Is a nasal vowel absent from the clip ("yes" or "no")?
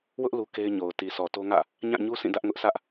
no